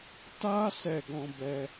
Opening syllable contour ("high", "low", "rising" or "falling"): high